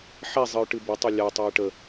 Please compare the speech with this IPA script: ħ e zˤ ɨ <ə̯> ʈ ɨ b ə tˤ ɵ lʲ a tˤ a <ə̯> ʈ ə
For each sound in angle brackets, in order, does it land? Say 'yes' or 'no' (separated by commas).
no, yes